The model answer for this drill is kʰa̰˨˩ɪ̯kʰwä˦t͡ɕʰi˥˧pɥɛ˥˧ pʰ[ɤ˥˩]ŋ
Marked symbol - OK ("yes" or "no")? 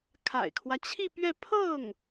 yes